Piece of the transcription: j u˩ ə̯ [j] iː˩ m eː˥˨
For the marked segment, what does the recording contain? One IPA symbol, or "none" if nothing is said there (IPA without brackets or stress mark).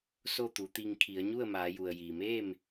j